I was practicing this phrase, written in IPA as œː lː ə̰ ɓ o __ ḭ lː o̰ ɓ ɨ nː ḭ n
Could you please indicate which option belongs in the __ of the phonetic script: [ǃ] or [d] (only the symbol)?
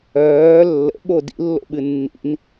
d